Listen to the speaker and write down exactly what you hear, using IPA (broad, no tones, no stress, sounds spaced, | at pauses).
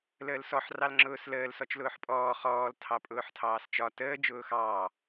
l əː l s ɔ ħ r ɑ l ŋ͡ǁ ʊː s l əː l s ɔ t͡ʃ l ʊː ħ pʼ ɔː χ ɔː l tʰ ɑ pʼ ʊː ħ tʰ ɑː s t͡ʃ ɒ t əː d͡ʒ ʊː x ɑː